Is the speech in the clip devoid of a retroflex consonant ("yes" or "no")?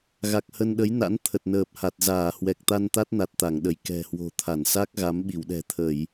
yes